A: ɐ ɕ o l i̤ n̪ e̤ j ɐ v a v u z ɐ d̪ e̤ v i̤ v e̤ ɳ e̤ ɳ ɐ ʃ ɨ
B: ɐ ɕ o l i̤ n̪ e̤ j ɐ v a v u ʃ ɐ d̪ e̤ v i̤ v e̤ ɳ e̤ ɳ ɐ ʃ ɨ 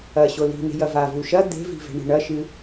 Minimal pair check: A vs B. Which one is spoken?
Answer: B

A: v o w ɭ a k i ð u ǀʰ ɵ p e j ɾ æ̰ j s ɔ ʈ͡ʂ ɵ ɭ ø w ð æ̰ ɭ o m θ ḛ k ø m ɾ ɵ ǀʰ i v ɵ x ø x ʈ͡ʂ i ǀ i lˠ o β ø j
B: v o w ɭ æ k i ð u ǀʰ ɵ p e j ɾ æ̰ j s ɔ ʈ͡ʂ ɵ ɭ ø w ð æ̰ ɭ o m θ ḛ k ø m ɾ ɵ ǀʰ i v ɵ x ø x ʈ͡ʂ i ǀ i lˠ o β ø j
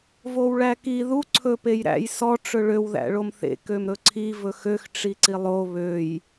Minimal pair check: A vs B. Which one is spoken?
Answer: B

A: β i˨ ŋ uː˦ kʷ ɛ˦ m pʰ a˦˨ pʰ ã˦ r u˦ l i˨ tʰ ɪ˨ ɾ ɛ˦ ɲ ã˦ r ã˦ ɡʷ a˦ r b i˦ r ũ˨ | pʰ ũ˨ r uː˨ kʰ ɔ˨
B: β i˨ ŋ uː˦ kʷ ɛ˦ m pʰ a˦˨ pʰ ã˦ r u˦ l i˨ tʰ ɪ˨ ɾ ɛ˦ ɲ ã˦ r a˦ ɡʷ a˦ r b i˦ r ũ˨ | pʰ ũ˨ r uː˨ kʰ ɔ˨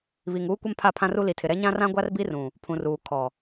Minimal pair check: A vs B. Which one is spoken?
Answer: A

